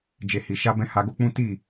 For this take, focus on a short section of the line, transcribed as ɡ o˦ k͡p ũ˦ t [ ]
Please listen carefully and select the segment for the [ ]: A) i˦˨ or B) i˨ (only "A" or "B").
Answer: A